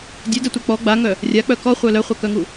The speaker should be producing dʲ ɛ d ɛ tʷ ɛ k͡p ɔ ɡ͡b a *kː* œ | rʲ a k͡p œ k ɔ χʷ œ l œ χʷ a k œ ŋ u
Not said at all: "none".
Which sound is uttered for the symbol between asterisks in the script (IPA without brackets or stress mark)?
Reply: ŋ